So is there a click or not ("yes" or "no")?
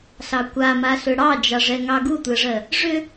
no